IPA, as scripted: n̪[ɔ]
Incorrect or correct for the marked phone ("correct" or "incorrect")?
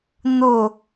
incorrect